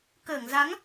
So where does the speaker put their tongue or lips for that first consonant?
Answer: velum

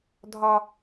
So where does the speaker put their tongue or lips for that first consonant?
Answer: tongue tip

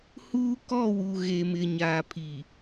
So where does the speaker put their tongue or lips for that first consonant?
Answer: throat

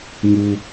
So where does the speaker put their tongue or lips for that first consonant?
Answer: velum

